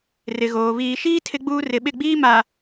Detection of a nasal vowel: absent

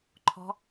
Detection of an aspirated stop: present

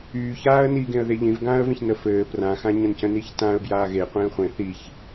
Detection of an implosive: absent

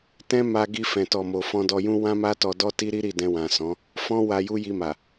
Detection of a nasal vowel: present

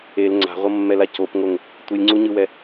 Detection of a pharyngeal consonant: absent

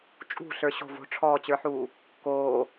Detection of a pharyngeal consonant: present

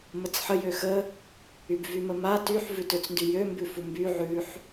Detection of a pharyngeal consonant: present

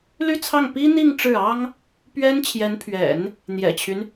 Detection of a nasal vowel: absent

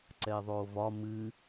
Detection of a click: present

